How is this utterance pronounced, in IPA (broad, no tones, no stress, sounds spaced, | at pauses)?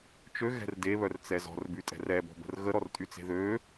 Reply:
t͡ʃ ø ɣ ɛ̤ r d e β œ r t͡s ɛ z ɔ̤ r b y tʼ ɛ̤ r ɛ b ɔ̤ b ə̤ r ɣ ə ɾ ɔ r tʼ y t͡s e̤ ð ø